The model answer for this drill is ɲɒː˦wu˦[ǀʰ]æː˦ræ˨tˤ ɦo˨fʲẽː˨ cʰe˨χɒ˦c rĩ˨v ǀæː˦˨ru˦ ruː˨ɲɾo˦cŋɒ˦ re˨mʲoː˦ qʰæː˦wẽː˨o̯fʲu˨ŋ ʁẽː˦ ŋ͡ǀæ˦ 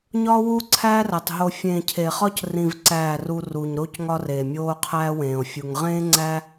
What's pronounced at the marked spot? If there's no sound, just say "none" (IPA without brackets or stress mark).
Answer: ǀʰ